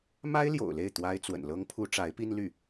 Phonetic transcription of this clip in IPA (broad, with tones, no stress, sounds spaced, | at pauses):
m a˥ ɪ̯ l j o̰˨˩ ʊ̯ l e˥˩ ɪ̯ t̪ w a˥ ɪ̯ t͡s w ə̰˨˩ n l ɤ˥ ŋ pʰ u˥ ʈ͡ʂ a˧˥ ɪ̯ p i˥ n l y˥˩